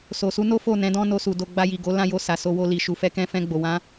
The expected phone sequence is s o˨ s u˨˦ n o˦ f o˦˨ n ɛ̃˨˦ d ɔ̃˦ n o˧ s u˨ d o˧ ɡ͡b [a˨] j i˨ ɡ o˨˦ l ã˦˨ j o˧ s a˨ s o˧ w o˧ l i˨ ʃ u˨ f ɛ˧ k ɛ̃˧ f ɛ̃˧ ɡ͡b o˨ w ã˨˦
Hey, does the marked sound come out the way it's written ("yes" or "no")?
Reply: no